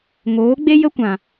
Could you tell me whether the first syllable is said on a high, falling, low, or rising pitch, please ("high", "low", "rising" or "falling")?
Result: rising